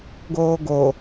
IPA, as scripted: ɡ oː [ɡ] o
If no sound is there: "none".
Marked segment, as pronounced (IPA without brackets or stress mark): ɡ